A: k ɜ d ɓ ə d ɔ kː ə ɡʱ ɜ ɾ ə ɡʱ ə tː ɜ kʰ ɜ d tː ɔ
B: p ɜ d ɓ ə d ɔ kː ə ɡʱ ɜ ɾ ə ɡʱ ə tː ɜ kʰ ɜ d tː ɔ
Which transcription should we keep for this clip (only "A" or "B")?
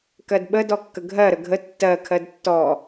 A